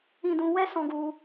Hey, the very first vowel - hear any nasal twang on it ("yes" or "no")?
yes